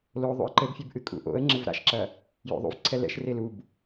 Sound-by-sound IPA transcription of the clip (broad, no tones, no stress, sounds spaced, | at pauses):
l o ðˤ ṵ ə̯ ǃ ɘ b fʲ e b ʔ ɨ kʼ ṵ ʔ o̰ ə̯ ŋ͡ǁ ɘ v ɾ a̰ ʃ ǁ ɐ | j o̰ ðˤ ṵ v ǀʰ ɛ l ɛ̰ ʃ r e l u b